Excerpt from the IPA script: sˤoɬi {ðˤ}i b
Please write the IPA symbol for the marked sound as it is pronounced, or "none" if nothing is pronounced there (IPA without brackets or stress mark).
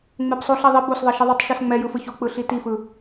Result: ðˤ